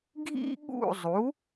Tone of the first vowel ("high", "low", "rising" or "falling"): high